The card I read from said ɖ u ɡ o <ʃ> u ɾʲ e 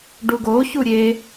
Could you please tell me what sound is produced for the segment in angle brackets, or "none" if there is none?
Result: ç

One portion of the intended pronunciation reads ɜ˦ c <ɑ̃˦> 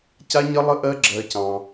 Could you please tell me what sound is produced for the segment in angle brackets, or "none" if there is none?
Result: ɑ̃˦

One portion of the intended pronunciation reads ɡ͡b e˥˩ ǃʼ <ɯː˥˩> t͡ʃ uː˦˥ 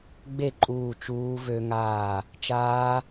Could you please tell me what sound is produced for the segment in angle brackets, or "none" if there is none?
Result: uː˥˩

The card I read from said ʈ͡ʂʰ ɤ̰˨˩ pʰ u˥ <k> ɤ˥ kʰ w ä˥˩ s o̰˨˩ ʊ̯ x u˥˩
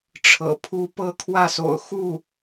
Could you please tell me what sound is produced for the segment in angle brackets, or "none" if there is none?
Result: p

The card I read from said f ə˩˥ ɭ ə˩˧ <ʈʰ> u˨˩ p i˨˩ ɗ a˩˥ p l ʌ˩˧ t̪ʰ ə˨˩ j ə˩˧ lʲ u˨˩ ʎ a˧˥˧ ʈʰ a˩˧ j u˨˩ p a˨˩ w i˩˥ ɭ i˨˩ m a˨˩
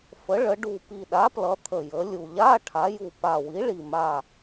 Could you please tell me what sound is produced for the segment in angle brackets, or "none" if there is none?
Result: ɖ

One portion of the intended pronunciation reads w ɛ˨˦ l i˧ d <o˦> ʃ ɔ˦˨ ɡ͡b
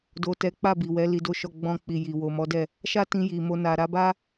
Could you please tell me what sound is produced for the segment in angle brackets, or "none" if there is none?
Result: o˦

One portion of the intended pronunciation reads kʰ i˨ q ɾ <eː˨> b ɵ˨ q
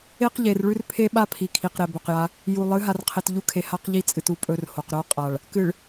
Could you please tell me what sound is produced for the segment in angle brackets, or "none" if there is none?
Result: e˨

